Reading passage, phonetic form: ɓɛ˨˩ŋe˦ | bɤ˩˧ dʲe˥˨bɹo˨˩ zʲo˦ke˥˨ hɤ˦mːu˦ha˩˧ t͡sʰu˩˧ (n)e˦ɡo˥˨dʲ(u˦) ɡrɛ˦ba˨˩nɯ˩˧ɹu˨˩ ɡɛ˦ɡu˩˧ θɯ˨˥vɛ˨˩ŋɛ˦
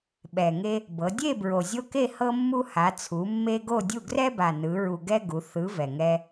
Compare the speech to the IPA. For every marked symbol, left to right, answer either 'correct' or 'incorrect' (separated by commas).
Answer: incorrect, incorrect